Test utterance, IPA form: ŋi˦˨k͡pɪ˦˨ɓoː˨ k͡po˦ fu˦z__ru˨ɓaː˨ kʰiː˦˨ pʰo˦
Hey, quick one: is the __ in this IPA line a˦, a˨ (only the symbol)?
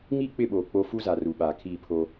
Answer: a˨